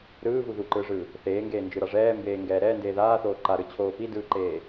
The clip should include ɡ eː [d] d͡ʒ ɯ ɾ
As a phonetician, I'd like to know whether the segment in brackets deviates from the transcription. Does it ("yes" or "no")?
yes